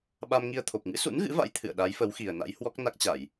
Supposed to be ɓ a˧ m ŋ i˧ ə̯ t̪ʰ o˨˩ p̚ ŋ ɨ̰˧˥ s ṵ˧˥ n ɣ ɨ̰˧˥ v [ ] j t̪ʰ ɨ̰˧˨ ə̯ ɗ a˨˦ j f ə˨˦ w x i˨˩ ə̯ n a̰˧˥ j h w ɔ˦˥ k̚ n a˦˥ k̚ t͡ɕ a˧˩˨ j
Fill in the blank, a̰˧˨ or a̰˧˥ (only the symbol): a̰˧˥